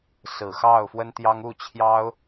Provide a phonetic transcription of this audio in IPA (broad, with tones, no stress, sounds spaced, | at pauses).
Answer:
s ɹ̩˨˩ x ɑ˥˩ ʊ̯ f w ə˥ n t̪ j ɑ˥ ŋ u˥˩ t͡ɕʰ j ɑ˥ ʊ̯